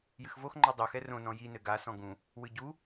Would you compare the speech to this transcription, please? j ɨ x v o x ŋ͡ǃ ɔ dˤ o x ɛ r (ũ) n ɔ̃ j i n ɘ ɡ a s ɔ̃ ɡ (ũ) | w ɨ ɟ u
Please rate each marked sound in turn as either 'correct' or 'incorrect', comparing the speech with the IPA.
incorrect, correct

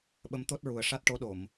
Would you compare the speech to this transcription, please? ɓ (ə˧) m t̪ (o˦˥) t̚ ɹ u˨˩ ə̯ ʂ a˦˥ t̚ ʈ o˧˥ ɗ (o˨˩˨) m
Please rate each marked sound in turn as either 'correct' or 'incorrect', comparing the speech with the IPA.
incorrect, correct, correct

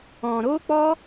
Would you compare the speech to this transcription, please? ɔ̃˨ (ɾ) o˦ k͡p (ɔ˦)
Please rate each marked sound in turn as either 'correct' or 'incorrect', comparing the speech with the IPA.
correct, correct

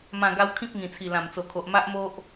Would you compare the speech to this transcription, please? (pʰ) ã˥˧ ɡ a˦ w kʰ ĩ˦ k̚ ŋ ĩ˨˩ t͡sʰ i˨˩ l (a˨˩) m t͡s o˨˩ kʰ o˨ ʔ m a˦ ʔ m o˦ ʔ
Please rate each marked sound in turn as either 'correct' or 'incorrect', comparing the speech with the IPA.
incorrect, incorrect

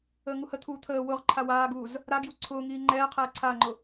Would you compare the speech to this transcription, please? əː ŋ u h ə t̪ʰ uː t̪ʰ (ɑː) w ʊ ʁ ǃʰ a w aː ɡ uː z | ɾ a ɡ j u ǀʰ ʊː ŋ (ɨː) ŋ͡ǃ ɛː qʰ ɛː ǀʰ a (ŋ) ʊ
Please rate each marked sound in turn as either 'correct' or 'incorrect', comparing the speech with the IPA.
incorrect, incorrect, incorrect

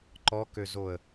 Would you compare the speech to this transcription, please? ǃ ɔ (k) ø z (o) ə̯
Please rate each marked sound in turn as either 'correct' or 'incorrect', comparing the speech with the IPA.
correct, correct

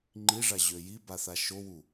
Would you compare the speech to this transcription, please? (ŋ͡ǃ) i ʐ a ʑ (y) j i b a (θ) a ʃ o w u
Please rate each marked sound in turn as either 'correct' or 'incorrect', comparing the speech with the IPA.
correct, incorrect, correct

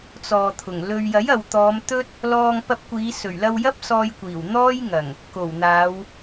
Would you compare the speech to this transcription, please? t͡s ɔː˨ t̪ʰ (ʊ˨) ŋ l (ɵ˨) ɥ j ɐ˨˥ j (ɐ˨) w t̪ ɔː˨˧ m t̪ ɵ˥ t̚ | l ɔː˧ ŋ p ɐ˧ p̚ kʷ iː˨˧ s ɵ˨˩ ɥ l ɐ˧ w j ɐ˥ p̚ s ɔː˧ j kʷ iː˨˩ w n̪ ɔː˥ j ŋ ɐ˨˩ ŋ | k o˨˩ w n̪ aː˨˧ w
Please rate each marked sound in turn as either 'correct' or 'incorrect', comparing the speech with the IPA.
incorrect, incorrect, correct

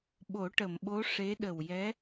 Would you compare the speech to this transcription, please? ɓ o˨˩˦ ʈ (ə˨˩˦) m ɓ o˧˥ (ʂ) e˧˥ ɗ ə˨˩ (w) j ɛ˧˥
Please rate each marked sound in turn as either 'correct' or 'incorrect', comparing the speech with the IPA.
incorrect, correct, correct

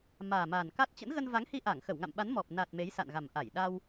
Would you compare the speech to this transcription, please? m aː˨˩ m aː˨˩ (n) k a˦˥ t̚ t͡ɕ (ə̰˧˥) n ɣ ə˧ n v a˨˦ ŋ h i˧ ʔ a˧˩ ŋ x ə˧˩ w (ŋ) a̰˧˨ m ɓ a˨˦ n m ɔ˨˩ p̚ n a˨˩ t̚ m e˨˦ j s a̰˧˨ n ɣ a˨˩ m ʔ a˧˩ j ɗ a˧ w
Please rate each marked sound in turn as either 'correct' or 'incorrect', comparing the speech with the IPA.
correct, correct, correct

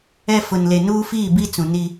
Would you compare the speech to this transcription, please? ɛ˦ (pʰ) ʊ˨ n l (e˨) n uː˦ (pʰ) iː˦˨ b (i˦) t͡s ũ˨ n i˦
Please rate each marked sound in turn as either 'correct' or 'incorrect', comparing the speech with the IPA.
incorrect, correct, incorrect, correct

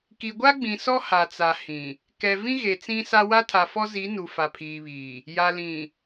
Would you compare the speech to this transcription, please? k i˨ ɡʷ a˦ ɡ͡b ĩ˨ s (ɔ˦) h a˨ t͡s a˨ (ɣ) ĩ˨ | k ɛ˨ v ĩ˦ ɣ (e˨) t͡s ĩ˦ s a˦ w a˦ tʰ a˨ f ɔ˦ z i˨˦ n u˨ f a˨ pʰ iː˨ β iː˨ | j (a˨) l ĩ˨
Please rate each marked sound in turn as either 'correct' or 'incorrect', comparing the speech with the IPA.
correct, incorrect, correct, correct

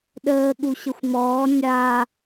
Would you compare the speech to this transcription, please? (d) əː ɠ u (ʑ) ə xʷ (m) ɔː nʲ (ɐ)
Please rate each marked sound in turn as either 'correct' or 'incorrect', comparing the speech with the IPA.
incorrect, incorrect, correct, incorrect

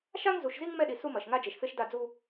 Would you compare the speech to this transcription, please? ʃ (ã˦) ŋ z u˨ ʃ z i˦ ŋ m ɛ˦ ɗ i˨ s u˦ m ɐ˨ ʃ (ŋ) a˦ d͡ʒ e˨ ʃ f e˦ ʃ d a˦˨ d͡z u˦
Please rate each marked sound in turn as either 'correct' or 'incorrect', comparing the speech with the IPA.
incorrect, correct

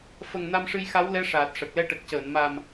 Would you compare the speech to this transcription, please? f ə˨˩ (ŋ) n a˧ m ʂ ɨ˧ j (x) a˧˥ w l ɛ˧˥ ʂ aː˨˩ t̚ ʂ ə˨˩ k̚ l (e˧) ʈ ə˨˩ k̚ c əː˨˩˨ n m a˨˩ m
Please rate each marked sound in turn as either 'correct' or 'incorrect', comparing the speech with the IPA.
correct, correct, incorrect

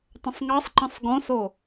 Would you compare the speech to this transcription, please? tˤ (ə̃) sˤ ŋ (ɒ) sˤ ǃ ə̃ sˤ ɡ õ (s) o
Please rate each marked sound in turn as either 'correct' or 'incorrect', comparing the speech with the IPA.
correct, incorrect, correct

